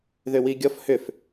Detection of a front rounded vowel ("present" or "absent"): present